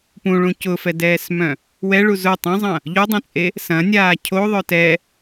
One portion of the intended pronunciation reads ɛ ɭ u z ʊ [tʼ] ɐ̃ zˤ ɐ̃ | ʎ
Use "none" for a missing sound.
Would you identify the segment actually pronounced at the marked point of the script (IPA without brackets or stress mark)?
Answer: tˤ